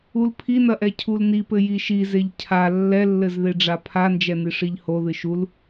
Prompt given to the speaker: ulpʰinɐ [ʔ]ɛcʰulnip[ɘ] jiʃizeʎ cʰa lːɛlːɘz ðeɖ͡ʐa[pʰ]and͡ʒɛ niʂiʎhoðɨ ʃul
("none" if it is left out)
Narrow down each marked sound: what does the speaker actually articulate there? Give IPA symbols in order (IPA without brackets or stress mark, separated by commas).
ʔ, ɘ, pʰ